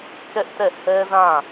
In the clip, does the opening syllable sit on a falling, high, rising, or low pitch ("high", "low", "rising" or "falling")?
high